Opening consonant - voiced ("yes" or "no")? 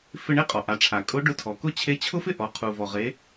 no